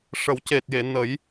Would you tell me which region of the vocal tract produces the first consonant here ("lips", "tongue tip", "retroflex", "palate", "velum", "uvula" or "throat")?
retroflex